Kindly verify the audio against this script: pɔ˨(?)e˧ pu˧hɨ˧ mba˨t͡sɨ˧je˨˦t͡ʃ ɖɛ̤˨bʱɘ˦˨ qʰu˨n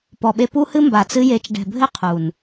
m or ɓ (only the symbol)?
ɓ